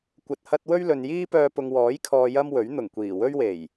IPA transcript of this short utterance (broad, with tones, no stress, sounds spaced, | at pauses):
kʷ ɐ˧ t̚ h ɐ˥ t̚ w ɵ˥ ɥ l ɵ˨ n j iː˥ p œː˧ p ʊ˨ ŋ w ɔː˨˥ j kʰ ɔː˨ j ɐ˥ m w ɵ˨˥ ɥ n̪ ʊ˨˩ ŋ kʷ iː˨˩ w ɵ˥ ɥ w e˨˩ j